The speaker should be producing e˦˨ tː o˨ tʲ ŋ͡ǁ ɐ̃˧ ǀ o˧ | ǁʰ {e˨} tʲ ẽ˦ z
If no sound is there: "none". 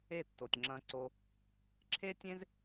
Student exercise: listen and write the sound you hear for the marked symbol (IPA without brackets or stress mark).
e˦